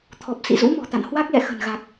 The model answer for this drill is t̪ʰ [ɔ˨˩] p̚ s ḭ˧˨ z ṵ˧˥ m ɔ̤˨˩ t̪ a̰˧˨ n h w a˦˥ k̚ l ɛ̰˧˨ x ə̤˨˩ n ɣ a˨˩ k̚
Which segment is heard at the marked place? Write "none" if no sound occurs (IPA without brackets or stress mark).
ɔ˨˩